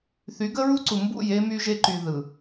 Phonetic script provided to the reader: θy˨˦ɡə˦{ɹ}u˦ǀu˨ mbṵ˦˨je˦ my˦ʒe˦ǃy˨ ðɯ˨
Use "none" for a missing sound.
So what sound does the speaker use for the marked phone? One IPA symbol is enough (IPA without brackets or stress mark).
ɹ